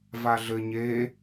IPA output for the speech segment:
v a ɮ ɘ ɲ e

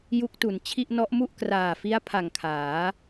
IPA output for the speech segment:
j u˦˥ k̚ t u˩˦ n t͡ɕʰ i˥˩ ʔ n ɔ˦˥ ʔ m u˥˩ ʔ k r aː˨˩ f i˦˥ a̯ pʰ a˨˩ ŋ kʰ aː˩˦

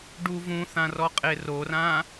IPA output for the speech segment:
ɖ u v ũ θ ã r ɔ qʼ e r o r ã

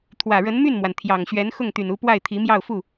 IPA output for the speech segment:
t̪ʰ w ä˨˩ ɻ ə˧˥ n m y˥˩ n m w a˩ n t̪ʰ j ɑ˨˩ ŋ ɕ ɥ ɛ˧˥ n x ʊ˥˩ ŋ t̪ y˨˩ n u˧˥ p w a˥˩ ɪ̯ t̪ʰ i˧˥ m j ɑ˥˧ ʊ̯ f u˥˩

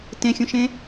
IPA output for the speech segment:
t ẽ xʲ ũ ʃ ẽ

